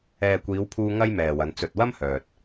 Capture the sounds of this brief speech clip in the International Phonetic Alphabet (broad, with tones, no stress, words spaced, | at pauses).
ɛː˨kʷiː˨˧wpʰuː˧ ŋɐ˥jmɛː˨wɐ˨˧n t͡sɵ˨t̚wɐ˥mhœː˨t̚